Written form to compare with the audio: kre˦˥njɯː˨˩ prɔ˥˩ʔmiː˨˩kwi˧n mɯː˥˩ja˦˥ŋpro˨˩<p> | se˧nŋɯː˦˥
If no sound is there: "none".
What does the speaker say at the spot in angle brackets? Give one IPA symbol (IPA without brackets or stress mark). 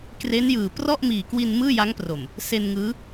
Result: m